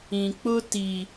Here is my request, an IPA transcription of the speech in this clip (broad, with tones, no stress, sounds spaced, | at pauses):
ĩ˨ k͡p ʊ˦ t i˨